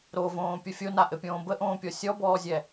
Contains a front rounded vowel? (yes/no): no